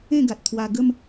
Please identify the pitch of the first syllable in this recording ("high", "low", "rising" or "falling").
falling